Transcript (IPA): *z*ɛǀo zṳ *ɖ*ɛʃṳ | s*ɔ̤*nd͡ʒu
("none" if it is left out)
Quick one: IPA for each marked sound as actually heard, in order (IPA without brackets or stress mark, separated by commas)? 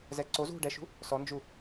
z, ɖ, ɔ